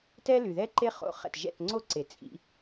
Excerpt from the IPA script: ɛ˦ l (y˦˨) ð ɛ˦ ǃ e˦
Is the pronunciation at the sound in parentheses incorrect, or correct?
incorrect